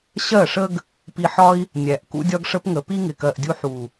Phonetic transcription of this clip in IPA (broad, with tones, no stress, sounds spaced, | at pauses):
ɕ ɜ˦˨ ʂ ə˦ ɡ | p i˧ ħ ɒ˦ i̯ | nʲ æ˨ ʔ k ṵ˦ dʲ ɒ˦ ɡ ʂ ə˦ p ŋ ə˨ p i˦ ŋ ɪ˧ k ɜ˧ ʔ dʲ u˦ ħ u˨